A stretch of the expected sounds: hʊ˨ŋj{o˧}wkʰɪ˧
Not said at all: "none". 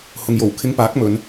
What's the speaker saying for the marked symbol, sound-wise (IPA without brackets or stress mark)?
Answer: o˨˩